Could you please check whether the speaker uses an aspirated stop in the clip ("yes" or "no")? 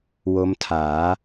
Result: yes